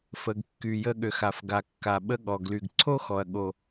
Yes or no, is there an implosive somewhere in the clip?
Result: yes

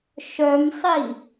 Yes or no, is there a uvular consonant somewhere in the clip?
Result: no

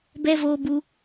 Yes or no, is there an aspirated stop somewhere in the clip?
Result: no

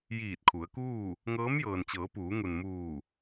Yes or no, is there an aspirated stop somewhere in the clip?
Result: yes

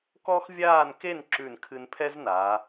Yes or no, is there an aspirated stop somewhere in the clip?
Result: yes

